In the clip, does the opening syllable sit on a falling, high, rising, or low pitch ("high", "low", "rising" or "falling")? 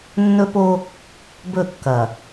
high